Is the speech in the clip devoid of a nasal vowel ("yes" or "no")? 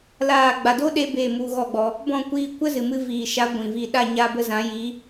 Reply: no